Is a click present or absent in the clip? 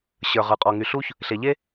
absent